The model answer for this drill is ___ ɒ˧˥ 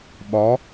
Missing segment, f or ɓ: ɓ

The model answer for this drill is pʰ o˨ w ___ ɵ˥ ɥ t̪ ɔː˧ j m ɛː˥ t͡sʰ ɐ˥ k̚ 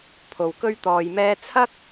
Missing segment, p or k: k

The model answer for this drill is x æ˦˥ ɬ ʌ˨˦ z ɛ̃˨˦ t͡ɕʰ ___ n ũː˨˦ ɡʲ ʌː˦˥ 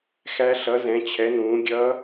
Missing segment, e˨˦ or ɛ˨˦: ɛ˨˦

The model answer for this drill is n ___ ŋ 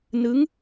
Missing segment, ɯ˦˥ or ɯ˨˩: ɯ˦˥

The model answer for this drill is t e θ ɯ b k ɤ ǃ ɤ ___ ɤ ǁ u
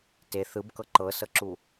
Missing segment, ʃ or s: s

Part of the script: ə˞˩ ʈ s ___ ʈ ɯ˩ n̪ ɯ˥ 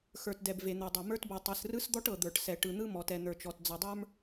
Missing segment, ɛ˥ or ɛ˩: ɛ˩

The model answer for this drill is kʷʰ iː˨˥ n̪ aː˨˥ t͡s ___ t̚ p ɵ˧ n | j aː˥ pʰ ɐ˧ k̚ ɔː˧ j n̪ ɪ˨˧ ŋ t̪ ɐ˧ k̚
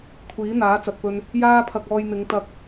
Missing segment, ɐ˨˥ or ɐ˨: ɐ˨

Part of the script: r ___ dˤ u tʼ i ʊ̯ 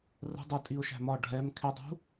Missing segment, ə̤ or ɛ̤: ə̤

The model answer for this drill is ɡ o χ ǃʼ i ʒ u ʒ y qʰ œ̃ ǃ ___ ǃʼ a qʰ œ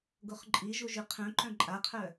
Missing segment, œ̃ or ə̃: œ̃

